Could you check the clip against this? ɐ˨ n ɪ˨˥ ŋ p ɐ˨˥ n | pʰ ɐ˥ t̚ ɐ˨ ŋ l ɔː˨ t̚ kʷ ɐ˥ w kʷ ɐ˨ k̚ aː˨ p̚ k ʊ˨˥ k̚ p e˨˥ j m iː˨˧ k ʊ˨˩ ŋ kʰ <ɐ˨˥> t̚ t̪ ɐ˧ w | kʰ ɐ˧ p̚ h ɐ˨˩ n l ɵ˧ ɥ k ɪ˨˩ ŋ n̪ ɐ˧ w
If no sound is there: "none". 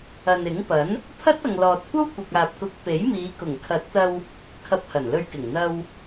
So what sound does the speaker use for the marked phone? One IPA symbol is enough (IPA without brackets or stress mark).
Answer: ɐ˨˥